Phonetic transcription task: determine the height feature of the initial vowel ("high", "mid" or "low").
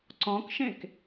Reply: mid